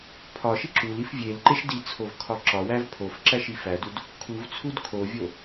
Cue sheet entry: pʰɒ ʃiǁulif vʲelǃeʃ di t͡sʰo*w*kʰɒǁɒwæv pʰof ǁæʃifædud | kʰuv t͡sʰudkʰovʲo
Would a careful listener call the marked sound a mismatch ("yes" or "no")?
yes